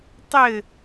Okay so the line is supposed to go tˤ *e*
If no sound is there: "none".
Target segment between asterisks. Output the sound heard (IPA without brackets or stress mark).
ɘ